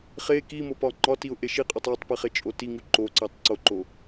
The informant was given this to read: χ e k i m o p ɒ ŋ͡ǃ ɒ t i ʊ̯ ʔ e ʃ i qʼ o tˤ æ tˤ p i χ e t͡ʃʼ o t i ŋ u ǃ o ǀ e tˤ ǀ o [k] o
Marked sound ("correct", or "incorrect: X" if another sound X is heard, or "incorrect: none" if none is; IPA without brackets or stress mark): incorrect: ǃ